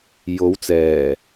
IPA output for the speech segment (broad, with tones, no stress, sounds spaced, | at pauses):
j o˨˧ w t͡s ɛː˨˩